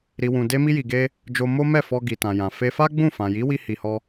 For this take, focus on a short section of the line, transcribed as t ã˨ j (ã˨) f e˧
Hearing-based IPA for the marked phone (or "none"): ã˨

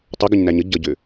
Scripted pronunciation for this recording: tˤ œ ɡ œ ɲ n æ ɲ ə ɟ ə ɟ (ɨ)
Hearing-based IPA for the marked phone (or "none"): ʏ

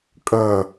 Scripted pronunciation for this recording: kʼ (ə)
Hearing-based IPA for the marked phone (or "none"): ə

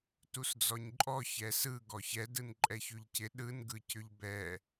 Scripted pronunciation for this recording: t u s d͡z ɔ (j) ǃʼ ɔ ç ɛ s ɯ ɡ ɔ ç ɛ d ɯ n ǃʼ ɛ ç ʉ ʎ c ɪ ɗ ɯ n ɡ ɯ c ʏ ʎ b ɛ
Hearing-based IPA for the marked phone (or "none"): ɲ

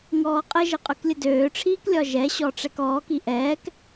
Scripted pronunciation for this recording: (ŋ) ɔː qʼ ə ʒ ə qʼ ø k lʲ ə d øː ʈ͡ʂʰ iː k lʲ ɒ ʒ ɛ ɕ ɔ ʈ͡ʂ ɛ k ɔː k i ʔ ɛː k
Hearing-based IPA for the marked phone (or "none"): ŋ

